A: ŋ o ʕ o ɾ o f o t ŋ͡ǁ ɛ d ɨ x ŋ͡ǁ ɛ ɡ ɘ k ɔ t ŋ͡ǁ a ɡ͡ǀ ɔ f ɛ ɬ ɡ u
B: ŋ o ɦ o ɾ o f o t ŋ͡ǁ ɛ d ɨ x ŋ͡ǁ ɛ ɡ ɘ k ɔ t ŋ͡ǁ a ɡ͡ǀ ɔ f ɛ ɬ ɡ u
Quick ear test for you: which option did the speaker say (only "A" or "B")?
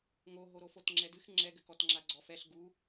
B